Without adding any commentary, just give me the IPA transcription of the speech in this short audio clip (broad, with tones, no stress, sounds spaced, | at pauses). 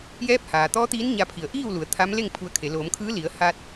j ɛː˧˥ p̚ h aː˩ t̪ ɔː˧˥ t̪ iː˧˥ n ɲ a˧ pʰ i˩˧ ə̯ ʔ iː˥˨ w l u˩˧ ə̯ t̪ʰ a˧˥ m l e˥˨ ŋ pʰ u˧ ə̯ kʰ e˩˧ l oː˩˧ m kʰ ɯː˧˥ l i˩˧ ə̯ h a˧ t̚